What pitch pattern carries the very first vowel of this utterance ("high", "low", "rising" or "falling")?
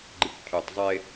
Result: low